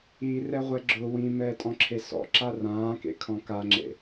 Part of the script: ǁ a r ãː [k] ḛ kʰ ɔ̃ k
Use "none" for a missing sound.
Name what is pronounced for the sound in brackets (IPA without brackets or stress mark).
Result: k